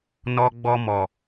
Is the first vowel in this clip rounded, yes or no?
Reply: yes